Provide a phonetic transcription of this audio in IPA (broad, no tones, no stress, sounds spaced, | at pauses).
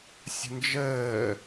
sʲ ə̤ n d͡ʒ əː